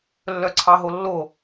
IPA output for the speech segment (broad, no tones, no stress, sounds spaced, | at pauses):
lː œ ǀʰ ɑ ɦ o lː o